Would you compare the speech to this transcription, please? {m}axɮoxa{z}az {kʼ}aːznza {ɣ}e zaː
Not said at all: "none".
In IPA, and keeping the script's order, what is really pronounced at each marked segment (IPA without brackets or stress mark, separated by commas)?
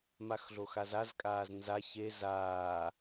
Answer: m, z, kʼ, ç